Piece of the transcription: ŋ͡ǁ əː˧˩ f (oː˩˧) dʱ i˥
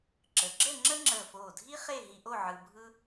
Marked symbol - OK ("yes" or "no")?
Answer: no